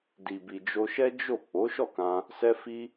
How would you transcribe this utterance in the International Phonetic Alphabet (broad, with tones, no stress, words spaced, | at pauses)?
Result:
di˨bi˨d͡ʒo˧ ʃɛ˦ d͡ʒo˦˨ k͡po˨˦ʃɔ˦˨kã˧ | sɛ˧fi˧